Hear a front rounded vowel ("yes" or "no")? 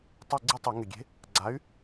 yes